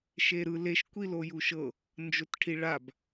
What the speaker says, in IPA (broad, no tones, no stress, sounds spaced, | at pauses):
ʃ e ɾ ɯ l e ʃ kʷ i l o j u ʃ ɤ | n d͡ʒ o t ʈʰ i ɭ a b